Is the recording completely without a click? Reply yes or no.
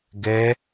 yes